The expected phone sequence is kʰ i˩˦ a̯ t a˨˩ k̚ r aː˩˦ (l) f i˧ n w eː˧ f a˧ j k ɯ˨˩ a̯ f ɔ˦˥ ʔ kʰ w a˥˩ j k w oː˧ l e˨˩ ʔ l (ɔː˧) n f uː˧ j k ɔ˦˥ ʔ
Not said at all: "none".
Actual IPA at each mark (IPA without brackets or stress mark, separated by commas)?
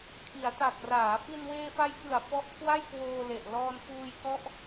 none, ɔː˧